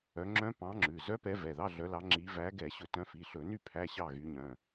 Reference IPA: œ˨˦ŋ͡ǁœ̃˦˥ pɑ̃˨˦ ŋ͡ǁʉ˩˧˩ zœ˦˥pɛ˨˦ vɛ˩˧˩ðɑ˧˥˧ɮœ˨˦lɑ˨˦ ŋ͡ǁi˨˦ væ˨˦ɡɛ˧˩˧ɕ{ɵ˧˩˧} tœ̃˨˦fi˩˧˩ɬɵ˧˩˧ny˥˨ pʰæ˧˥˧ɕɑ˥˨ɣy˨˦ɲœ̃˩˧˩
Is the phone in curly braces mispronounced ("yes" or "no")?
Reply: no